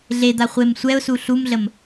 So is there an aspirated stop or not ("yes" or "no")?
no